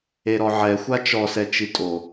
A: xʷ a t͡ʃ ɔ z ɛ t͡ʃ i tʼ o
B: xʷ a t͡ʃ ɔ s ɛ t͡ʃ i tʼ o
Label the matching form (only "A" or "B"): B